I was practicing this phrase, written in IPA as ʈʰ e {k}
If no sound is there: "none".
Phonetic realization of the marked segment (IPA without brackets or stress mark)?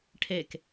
k